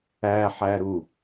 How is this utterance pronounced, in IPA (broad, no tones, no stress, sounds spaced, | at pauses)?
æ ħ æ ɾ u